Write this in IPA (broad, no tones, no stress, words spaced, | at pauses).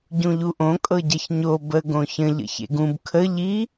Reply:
ɟũʎuʔõ kʼɤɟɐçɲo bə ɡõçə̃ ʎə̰çḛɡũb kʰə ʎi